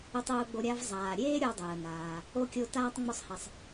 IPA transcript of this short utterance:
ʊ˥tˤʊː˥ɡ͡bo˦ɾʲa˥v zˤaː˨ ɾʲeː˥ ɾʲo˦dˤəː˩ naː˩ | o˥kʲo˦taː˥tˤ ŋ͡mʊ˦sˤhɛ˨sˤ

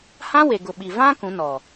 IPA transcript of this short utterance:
hã˦we˨ɡʊ˨ɓi˨ vã˦ kũ˨˦nɔ˨

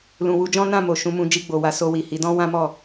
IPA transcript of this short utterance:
lũ˨wu˧d͡ʒɔ̃˦ nã˦˨mo˨ ʃũ˨˦mũ˧ d͡ʒi˧ɡ͡bo˨wa˧ so˧wi˨hi˨˦dɔ̃˦ wã˦mɔ˦˨

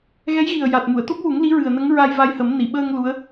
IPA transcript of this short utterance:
ɣɛ˧˥jɣi˨˩ə̯ja˨˩t̚mu˨˩˨ə̯ t̪o˦˥p̚wu˨˩˦ŋ li˧˥ɹɨ˨˩ə̯nə˧˥ŋ ɹa˧jva˧jhə˨˩˦m ni˨˩˨ ɓəː˧ŋ lu˧˥ə̯

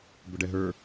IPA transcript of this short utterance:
bʊɖɛɦə˞

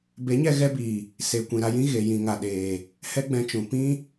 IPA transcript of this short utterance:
be˨˦ɲɛ˧ ɣɛ˧biː˨ | se˨ kʷĩ˨ɾa˧jĩ˦ ɣe˨jĩ˨ ŋa˨ɗeː˨ | hɛ˦ɡ͡bɛ̃˧t͡ʃũ˨ pĩ˦

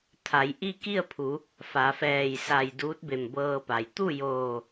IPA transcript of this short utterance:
t̪ʰa˩˧jʔi˥˨ki˥˨ə̯pʰu˩˧ | fa˩˧fɛː˧˩j sa˧˩j duː˧˥t̚be˧˩mbɤː˧pa˩j t̪u˥˨joː˧˩

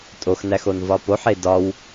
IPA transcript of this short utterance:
tʼoxnæxon vɒpoħe dɒw

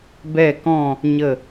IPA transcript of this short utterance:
bɛ˧˩kɔ̃˧˩ | ɲə˧˩

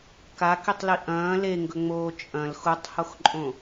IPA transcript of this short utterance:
kakitˤli ʔɐ̃ː leŋɡɵŋ͡moː t͡ʃʼɐ̃l xutˤhoxǃʼõ

